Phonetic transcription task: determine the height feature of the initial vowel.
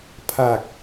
low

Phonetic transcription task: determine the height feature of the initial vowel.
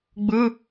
high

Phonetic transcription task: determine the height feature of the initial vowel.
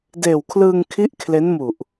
mid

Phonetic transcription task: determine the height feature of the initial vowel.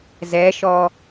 mid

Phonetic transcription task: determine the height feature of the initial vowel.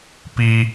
high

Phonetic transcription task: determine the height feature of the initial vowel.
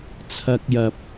low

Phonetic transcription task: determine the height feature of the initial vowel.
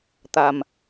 low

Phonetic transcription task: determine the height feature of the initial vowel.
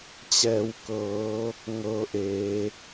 mid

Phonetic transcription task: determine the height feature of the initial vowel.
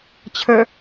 mid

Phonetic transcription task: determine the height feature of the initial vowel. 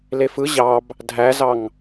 mid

